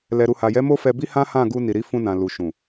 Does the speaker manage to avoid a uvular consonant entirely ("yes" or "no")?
yes